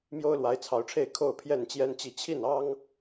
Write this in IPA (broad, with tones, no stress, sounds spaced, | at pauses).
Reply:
m j o˦ ʊ̯ l w a˨˦ ɪ̯ t͡sʰ ɑ˨˦ ʊ̯ ʈ͡ʂʰ e˥˨ ɪ̯ kʰ o˥˨ ʊ̯ pʰ j ɛ˥˨ n t͡ɕ j ɛ˦ n t͡ɕ i˥˨ t͡ɕʰ i˥˨ n ɑ˦ ŋ